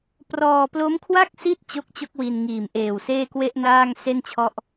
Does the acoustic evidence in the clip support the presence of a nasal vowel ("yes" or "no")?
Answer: no